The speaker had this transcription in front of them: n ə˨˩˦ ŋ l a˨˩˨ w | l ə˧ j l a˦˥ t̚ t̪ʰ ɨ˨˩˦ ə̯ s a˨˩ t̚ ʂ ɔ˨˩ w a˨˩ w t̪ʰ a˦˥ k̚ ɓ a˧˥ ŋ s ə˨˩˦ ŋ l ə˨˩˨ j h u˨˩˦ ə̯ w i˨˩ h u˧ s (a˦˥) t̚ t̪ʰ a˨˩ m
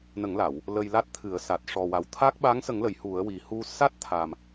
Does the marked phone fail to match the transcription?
no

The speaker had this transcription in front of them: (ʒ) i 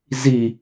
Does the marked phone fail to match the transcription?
yes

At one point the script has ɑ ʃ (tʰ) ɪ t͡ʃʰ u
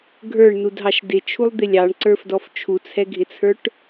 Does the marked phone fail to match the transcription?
yes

